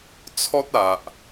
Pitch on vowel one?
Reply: high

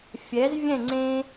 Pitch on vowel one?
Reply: rising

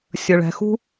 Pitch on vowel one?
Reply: low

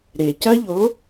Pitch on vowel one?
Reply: low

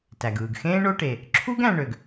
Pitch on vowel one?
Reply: low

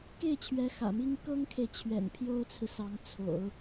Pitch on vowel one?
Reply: falling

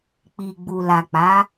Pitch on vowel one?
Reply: low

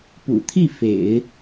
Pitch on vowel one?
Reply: low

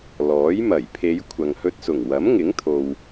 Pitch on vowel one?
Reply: rising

